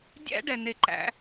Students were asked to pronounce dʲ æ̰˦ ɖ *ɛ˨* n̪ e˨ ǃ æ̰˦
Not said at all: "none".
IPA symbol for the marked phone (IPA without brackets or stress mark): ɛ˨